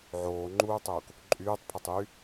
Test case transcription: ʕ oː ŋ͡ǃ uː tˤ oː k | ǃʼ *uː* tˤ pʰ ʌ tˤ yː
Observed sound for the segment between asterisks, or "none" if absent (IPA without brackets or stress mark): yː